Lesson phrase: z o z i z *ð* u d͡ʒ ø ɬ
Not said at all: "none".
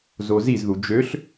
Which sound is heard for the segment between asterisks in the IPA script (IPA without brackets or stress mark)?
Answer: ð